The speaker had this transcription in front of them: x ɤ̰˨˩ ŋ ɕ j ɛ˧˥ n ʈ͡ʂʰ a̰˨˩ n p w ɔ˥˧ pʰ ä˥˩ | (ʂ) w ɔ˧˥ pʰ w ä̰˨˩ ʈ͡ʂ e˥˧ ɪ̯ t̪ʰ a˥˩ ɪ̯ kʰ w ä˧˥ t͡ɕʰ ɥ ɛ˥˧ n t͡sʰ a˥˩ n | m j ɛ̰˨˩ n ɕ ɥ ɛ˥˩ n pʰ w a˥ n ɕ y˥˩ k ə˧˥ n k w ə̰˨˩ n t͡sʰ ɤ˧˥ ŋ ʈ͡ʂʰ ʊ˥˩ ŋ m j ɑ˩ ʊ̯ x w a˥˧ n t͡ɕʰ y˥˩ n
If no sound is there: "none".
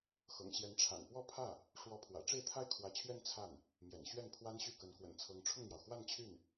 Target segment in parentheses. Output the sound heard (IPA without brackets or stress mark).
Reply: ʂ